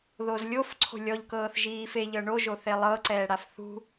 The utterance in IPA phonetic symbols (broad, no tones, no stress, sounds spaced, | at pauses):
ð o z lʲ o f ǀʰ o̤ lʲ ɔ ʎ k ɤː θ ʒ iː f e ʎ ɤ ɳ o ʒ o θ e lˠ ɤ ǀ ɛː ɽ a f θ ṳ